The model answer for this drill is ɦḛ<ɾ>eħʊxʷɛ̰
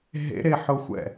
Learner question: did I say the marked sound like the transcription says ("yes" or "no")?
yes